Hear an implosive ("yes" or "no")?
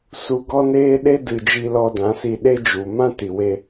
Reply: yes